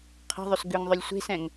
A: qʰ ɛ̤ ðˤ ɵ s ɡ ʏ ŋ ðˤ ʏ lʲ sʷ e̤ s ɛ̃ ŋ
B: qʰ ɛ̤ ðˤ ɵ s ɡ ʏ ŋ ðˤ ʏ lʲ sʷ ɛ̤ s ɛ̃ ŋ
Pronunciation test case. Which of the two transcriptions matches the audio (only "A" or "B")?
A